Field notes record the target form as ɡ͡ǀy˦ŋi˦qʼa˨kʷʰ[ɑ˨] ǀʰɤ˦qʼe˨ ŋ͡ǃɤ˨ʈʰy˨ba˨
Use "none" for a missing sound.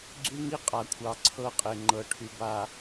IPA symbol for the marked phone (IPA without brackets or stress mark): ɑ˨